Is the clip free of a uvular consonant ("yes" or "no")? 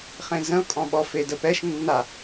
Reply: no